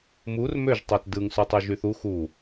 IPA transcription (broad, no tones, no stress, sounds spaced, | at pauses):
m u r m ø ʒ tˤ æ t d ɯ ŋ s u tˤ y ʒ y θ u x u